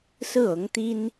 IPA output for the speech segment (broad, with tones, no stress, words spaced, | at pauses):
sɹ̩˥˩ɤ˧˥ŋt̪i˥n